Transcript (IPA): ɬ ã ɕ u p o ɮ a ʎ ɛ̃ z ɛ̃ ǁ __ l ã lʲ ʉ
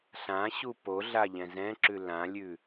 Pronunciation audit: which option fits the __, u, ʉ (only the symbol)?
ʉ